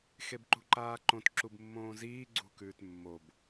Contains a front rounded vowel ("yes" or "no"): no